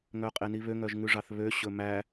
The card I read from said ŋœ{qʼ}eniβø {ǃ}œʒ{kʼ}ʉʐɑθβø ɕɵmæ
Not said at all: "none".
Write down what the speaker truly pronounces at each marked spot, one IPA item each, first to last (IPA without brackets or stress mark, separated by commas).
qʼ, ŋ, ŋ